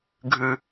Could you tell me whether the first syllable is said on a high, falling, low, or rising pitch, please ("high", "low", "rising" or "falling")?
low